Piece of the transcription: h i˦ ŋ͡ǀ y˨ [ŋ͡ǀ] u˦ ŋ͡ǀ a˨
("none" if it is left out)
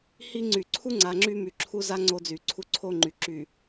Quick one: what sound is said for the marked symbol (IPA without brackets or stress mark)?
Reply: ǀʰ